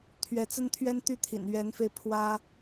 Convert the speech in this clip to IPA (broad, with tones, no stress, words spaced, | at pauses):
t̪ʰɥɛ˧˥t͡sə˥nt̪ʰɥɛ˥n t̪y˥t̪ʰḭ˨˩n ɥɛ˧˥nfe˧ɪ̯ pʰwä˥